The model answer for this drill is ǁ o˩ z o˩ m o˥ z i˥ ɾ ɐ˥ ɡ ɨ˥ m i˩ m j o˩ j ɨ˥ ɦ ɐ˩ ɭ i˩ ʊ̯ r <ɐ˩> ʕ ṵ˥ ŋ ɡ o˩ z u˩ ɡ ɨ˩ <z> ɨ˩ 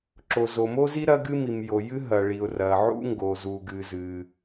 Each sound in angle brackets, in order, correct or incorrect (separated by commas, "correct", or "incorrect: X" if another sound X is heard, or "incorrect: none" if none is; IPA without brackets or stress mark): correct, correct